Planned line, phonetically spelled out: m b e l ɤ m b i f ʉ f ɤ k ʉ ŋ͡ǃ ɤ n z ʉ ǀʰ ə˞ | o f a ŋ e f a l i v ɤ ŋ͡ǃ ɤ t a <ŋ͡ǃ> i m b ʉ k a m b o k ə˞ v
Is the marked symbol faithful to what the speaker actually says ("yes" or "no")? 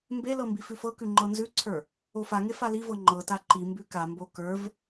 no